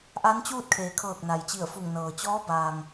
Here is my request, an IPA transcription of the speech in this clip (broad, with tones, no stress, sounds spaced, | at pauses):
ʔ a˧˥ n t͡ɕ uː˥˨ t̚ kʰ eː˩˧ kʰ ɤː˧˩ k̚ n a˩ j t͡ɕ i˧˩ ə̯ f u˧˩ ŋ n ɤː˩ t͡ɕ ɔː˧˥ b aː˩ ŋ